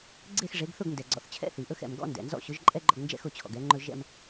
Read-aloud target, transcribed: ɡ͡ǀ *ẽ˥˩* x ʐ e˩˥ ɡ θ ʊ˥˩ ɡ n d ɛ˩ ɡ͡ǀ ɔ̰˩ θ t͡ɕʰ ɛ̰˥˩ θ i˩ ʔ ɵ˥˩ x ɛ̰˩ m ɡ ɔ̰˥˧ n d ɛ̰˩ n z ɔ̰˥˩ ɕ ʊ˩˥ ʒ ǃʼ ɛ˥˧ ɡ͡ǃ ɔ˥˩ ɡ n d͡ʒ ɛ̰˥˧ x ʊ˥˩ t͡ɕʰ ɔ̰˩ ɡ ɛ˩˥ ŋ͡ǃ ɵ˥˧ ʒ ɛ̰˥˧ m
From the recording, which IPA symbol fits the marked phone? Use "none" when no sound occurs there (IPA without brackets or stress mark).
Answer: e˥˩